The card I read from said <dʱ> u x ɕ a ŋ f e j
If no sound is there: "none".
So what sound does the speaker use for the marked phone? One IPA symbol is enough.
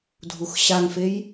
dʱ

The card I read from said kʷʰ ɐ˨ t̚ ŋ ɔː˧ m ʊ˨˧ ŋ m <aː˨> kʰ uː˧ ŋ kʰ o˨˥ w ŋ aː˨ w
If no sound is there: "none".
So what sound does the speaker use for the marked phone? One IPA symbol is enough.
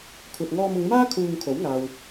aː˥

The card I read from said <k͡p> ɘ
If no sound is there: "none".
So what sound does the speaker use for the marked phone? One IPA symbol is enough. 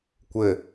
kʷ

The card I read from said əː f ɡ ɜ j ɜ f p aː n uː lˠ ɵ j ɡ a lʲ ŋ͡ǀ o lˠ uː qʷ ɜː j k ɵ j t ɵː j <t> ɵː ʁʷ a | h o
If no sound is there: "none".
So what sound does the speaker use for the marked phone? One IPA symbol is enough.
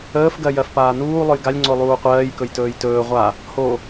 t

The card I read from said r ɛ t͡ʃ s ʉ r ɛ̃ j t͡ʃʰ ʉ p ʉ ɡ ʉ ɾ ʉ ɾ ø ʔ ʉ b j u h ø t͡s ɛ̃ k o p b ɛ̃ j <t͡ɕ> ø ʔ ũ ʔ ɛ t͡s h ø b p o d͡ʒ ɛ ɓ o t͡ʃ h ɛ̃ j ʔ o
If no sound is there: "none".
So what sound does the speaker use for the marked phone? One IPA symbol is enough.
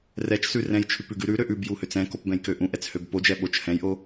k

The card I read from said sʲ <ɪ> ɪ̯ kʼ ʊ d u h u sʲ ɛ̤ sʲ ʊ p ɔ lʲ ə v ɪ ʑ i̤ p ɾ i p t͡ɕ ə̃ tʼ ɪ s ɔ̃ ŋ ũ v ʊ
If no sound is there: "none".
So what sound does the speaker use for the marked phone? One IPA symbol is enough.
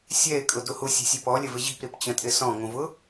ɛ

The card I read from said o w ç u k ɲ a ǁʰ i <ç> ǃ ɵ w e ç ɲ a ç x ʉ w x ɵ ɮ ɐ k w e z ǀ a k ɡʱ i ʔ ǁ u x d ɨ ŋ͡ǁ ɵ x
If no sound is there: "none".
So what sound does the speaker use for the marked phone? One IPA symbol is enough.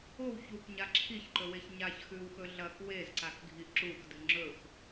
ç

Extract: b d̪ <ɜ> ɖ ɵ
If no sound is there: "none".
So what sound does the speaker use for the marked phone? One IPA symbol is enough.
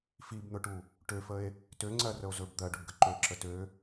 ɜ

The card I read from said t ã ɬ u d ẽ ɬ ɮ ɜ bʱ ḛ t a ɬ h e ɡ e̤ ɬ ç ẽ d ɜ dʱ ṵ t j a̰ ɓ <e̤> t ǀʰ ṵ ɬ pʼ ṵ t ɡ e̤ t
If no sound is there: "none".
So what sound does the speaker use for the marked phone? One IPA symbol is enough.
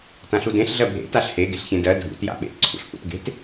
ḛ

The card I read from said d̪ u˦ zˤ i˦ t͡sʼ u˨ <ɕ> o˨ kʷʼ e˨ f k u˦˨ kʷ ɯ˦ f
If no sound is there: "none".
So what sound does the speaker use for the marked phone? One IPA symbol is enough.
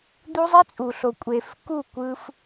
ɬ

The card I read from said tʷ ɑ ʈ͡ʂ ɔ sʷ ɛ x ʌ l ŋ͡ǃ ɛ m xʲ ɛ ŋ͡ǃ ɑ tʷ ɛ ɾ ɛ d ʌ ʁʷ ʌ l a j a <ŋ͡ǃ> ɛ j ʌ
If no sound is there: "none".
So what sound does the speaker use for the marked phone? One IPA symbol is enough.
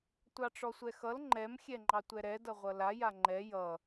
ŋ͡ǃ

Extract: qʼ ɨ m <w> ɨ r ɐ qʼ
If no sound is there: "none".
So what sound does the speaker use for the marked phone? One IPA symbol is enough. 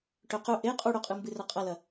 b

